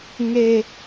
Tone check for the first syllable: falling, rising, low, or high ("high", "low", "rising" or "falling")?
high